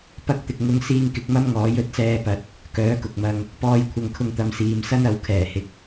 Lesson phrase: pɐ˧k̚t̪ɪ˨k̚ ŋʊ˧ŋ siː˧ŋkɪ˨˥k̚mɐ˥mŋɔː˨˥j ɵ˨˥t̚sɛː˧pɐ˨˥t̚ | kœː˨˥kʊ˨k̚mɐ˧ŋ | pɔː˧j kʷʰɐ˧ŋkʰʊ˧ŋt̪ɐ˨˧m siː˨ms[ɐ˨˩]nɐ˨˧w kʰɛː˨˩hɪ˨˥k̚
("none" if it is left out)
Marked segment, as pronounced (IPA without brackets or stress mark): ɐ˥